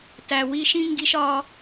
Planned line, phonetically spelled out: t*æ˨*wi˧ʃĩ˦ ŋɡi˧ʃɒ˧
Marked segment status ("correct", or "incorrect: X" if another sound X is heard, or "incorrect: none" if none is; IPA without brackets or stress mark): correct